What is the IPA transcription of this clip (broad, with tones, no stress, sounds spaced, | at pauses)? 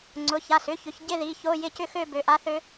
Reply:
ŋ͡ǀ ʊ˩˧˩ ç a˩˧˩ s ʏ˧˥˧ ç ʏ˩˧ ç ɟ ɪ˥˧ ð i˩˧˩ ç o˧˥˧ j ɪ˥˧ c ʏ˥˧ x ø˥˧ b ø˩˧˩ ʔ a˧˥ θ ø˧˥